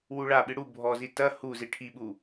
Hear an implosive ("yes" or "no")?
yes